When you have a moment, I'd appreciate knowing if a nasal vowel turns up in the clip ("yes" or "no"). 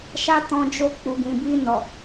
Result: yes